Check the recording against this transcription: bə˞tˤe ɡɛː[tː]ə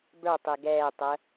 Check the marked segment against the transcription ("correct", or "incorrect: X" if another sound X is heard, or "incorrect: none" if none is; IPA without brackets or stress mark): incorrect: tˤ